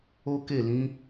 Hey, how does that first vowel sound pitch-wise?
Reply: high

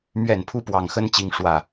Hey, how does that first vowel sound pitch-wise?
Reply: falling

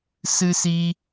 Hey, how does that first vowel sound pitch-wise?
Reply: high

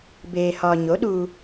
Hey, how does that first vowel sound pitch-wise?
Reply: low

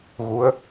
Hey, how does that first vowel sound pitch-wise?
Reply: rising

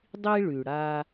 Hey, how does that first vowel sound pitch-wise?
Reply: high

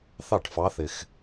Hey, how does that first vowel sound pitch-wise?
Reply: falling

